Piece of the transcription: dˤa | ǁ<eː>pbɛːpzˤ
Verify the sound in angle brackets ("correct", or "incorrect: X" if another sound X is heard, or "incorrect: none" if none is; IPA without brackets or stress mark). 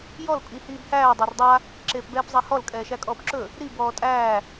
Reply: correct